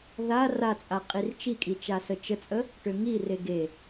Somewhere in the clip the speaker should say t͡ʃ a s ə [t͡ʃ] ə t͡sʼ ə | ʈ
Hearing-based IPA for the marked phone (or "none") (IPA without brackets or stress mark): t͡ʃ